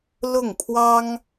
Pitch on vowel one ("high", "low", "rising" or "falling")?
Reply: falling